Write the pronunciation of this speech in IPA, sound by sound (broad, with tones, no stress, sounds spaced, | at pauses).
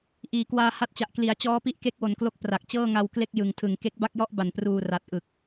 ʔ iː˩˦ k w aː˧ h a˦˥ t̚ t͡ɕ a˨˩ ʔ k l i˩˦ a̯ t͡ɕ ɔː˦˥ p i˦˥ ʔ k e˦˥ k̚ w o˩˦ n k l o˦˥ k̚ p r a˨˩ k̚ t͡ɕ ɤː˥˩ ŋ a˧ w k l e˥˩ k̚ j ɯ˨˩ ŋ tʰ ɯ˨˩ ŋ k e˦˥ k̚ b a˥˩ k̚ j ɔ˥˩ ʔ b a˨˩ n p r uː˨˩ r a˨˩ t̚ ʔ ɯ˨˩ k̚